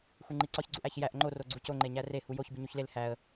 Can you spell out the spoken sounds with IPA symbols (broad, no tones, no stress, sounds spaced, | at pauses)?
x u ŋ͡ǃ i ǀ ɒ ç ɡ͡ǀ u ʔ æ ç j æ ʔ ŋ͡ǃ o r o ɡ͡ǀ u c o ŋ͡ǃ e ɲ æ r e h u j o ç b i ɲ u ç l e l h æ ə̯